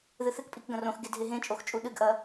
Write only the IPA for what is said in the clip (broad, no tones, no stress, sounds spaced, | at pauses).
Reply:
ð ɨ θ ɨ k pʼ i k ɡ ɐ̃ r õ x ɡ e dʱ e ɦ ẽ t͡ʃʼ o x t͡ʃʼ u ɗ ɨ ɡ ʔ ɐ